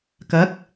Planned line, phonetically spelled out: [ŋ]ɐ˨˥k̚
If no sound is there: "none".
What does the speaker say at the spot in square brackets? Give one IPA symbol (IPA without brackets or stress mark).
k